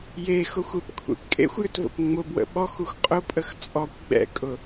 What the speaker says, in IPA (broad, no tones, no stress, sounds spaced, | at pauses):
j e x ʊ xʷ e p kʷʰ ḛ p kʼ ḛ xʷ j ʏ t v ə̰ p ŋ͡m ʊ b w ə̰ ɓ ɔ x u x qʼ ʊ pʼ ə x t͡sʼ ɔ kʷ ɡ͡b ɛ̰ kʼ ʊ